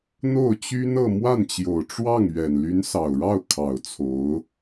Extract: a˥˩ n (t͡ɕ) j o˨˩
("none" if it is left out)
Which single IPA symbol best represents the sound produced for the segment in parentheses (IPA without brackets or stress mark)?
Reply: t͡ɕ